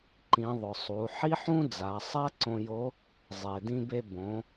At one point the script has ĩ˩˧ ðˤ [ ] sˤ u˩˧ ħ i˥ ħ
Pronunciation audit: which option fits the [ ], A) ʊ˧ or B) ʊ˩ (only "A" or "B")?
B